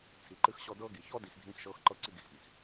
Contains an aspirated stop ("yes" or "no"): yes